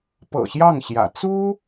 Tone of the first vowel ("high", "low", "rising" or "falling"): low